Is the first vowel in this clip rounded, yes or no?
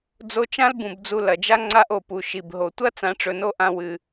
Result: yes